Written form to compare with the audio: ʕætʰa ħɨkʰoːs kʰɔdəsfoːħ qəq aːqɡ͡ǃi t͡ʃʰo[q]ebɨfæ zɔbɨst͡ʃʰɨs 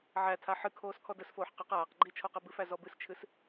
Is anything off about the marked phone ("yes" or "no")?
no